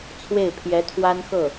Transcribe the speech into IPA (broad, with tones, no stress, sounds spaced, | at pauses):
t͡sʰ w e˥˩ ɪ̯ pʰ j ɛ˧˥ t̪ʰ w a˥ n x ɤ˥˩